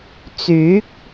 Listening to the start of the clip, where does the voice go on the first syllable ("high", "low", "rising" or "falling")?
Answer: rising